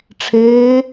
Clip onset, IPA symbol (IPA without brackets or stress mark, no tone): ʈ͡ʂʰ